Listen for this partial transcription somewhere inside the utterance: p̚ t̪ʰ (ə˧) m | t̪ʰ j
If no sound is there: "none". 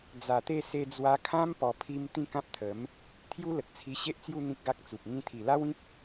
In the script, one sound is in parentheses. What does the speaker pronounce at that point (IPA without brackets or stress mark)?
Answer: ə˨˦